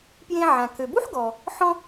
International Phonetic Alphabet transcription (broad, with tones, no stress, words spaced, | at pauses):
pjẽ˧ ʕã˩kø˩bu˥ħɡɔ˩ | ħɔ̃˧